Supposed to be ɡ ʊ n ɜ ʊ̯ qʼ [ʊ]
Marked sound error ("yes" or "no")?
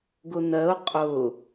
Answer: no